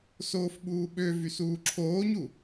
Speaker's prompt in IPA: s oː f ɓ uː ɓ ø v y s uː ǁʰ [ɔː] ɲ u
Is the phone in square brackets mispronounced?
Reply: yes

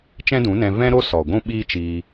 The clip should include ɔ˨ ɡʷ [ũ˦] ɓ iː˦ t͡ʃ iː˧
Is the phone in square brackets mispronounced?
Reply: no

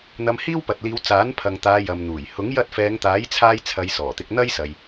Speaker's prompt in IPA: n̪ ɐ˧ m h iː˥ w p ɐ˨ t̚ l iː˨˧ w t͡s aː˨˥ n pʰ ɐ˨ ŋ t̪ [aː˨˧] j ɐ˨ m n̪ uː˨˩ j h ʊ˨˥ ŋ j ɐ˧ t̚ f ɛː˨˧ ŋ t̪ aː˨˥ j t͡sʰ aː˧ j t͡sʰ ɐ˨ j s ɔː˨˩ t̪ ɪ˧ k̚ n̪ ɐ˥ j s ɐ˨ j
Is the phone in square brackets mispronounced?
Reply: no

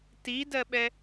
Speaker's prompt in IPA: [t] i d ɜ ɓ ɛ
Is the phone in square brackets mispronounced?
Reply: no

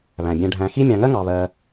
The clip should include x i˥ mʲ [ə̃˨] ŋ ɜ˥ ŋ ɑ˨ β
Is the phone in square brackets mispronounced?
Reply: yes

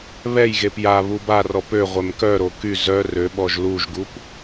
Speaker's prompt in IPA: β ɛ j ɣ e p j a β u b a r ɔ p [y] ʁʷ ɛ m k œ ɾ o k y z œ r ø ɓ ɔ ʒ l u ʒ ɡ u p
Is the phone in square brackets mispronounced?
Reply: yes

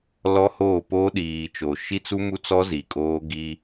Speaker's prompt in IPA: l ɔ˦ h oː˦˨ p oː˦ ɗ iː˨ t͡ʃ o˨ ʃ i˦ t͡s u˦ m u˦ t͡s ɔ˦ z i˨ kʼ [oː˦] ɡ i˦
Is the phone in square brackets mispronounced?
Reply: no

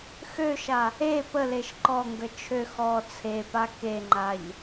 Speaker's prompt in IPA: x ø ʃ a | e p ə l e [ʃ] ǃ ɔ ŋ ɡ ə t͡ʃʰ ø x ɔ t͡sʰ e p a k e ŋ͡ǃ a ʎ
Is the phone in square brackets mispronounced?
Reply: no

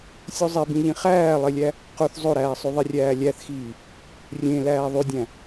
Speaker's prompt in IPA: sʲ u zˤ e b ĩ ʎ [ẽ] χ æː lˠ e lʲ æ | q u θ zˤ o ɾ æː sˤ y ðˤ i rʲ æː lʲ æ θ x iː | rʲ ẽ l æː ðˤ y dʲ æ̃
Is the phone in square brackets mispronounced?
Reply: yes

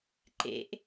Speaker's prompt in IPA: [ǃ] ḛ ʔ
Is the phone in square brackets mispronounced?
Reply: no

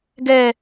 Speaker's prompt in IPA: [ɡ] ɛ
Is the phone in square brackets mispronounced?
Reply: no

